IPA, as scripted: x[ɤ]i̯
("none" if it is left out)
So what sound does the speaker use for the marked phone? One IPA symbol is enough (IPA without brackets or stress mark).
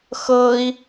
ɤ